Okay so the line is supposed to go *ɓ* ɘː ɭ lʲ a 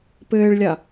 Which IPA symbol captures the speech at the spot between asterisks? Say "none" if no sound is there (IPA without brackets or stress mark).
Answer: p